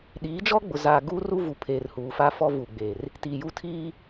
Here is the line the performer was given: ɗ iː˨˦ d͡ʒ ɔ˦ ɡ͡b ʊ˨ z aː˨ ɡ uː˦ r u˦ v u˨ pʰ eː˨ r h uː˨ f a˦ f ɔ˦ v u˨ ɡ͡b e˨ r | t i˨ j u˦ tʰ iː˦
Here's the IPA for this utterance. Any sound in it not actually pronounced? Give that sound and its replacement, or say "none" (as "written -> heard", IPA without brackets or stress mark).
none